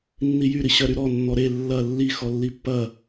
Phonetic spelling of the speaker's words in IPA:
nː i j y ɾ i ɕ ɜ ɾ y ɾ ɔ nː ɔ ɾ e lː ɐ lː i x ɔ lː i pː ɐ

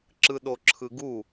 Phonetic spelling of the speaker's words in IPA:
ǁ ɯ ɗ o ǁʰ ɯ ɡ u

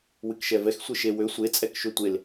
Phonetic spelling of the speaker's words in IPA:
w ɨ k ʃ ɛ v ɛ x sʷ e ʃ e w ø sʷ e t͡sʼ ɛ k ʃ ø tʷ e l

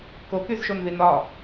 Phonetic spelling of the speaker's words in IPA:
k o k y z ʃ o n ð i n ɒ

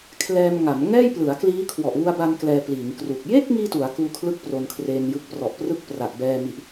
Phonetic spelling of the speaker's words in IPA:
kʰ l ɛː˧ m ŋ a˩˦ m ŋ ɛː˥˩ j p l ɯ˩˦ a̯ k l iː˦˥ kʰ w ɔ˨˩ ʔ w u˧ a̯ b a˧ n k l ɛː˧ p l iː˩˦ ŋ k r u˨˩ k̚ j e˥˩ k̚ ŋ iː˧ t u˩˦ a̯ k uː˧ kʰ l ɯ˥˩ k̚ p r o˧ n kʰ r eː˧ n j ɯ˦˥ k̚ p r ɔ˨˩ ʔ p r ɯ˥˩ k̚ p r a˨˩ ʔ b ɛː˧ m i˨˩ ʔ

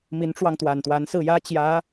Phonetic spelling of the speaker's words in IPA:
m i˧˥ n ʈ͡ʂ w ɑ˧ ŋ t̪ w a˨˩ n t̪ w a˧˥ n s ɹ̩˥˩ j ä˥ t͡ɕ j ä˧˥

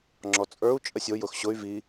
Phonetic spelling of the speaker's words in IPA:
ŋ͡ǁ ɔ t͡sʼ ə˞ u̯ t͡ʃʼ ə sʲ o j ʊ x ɕ ʊ y̯ v i

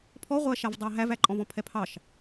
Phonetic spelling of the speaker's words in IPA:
pʰ ɔ ʁʷ æ ʃ a v dˤ ɑ ɦ æ v æ ǃʼ ɔ̃ v ɔ̃ pʰ ɛ pʰ ɑ ʃ

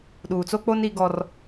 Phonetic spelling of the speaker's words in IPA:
ɗ uː˨ t͡s o˦ k͡p o˦ n i˦ ɡ ɔ˦ r

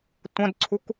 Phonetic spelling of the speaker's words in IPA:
tʷ ə̃ d ǀʰ u k

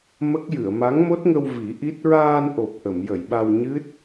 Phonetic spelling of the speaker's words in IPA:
m ə˦˥ k̚ j ɨ˨˩˨ ə̯ m a˧˥ ŋ m o˦˥ t̚ ŋ ə˧ w v i˨˩˦ ʔ i˦˥ t̚ ɹ aː˧ n ʔ o˨˩ p̚ ʔ ə˨˩˨ m j ə˨˩˨ j ɓ a˧ w ɲ ɨ˦˥ t̚

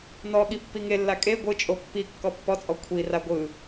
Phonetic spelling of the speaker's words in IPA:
n ɔ ɠ i pː i ŋ e lː a kʼ e ɡʷ ɯ t͡ʃʼ o pː i kː ɔ pː ɔ t͡sʼ ɔ kʷʰ i r a ɡʷ ɯ

